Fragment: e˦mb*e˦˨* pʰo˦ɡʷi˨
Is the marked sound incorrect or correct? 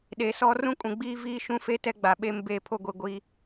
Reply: correct